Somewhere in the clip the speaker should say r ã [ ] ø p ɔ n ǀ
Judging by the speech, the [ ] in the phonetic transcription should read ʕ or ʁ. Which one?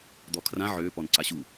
ʕ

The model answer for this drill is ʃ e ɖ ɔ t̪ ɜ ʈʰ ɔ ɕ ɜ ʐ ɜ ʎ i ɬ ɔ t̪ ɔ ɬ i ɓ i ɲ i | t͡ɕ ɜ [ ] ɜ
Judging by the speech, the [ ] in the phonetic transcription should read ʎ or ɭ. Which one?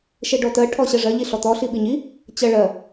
ɭ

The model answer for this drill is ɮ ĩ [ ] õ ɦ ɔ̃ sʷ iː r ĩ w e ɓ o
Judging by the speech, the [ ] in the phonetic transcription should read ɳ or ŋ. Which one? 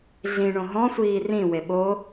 ɳ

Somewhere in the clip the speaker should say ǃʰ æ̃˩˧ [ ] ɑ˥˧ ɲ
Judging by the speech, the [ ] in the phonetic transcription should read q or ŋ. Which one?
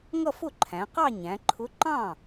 q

